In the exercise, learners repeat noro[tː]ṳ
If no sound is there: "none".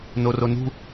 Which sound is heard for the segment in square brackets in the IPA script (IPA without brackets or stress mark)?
n